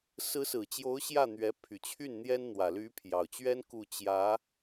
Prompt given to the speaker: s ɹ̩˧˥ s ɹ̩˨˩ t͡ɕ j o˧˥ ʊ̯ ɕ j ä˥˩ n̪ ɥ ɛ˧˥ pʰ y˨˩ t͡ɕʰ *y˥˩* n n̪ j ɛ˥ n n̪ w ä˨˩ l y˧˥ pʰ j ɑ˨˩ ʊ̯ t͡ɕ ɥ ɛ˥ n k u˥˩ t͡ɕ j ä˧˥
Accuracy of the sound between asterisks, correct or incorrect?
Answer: correct